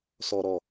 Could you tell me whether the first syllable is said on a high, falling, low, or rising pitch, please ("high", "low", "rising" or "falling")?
high